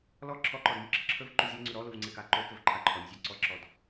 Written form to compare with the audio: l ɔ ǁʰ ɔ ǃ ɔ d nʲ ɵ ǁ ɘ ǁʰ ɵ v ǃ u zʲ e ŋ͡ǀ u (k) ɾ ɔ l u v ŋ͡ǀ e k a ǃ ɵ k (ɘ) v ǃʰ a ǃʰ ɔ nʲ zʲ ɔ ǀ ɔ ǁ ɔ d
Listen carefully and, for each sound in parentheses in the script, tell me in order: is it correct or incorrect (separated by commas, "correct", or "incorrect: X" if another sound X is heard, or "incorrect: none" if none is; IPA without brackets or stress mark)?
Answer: incorrect: none, correct